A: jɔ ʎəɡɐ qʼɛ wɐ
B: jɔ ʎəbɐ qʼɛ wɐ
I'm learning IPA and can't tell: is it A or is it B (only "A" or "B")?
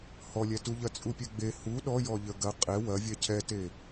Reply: A